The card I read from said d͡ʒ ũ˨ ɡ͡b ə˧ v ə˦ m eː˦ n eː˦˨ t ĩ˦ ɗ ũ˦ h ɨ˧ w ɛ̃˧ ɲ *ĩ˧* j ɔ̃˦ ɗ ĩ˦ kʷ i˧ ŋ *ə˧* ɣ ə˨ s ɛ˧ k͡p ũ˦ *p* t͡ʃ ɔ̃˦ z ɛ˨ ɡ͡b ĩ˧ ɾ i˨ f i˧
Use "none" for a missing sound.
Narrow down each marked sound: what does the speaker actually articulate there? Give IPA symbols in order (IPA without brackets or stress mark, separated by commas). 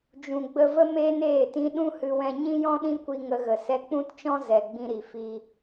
ĩ˦, ə˧, t